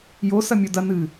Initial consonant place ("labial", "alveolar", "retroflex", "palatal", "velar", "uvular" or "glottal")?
palatal